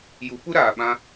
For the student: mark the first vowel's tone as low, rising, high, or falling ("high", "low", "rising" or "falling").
rising